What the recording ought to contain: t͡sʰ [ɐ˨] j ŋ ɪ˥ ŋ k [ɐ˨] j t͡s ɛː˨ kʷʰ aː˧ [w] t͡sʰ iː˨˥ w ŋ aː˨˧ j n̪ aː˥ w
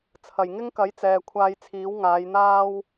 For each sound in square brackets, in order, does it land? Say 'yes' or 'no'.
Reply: no, no, no

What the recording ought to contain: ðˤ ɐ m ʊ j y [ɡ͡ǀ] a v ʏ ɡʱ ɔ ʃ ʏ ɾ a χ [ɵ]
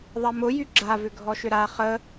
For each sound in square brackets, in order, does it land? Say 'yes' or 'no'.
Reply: no, no

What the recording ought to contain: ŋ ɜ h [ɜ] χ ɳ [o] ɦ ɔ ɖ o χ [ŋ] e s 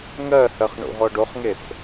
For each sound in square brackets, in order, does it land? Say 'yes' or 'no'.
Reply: yes, no, yes

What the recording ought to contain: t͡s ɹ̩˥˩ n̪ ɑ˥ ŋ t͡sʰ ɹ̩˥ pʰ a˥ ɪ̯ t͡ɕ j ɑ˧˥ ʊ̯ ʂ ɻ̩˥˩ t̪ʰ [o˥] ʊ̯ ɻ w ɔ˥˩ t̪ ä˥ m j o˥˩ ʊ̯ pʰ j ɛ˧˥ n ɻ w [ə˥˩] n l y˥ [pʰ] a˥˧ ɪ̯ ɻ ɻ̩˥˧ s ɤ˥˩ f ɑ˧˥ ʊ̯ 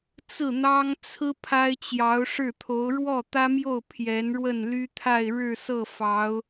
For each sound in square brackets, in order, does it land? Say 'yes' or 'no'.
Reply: no, yes, no

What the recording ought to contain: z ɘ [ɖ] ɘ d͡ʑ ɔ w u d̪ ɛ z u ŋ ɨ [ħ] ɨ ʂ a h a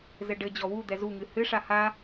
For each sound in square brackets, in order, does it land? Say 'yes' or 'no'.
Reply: yes, no

